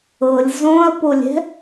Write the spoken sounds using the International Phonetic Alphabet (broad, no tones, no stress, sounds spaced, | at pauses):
ɤ lʲ z õ ɐ̯ p o lʲ ɛ̤